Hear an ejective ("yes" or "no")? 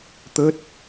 no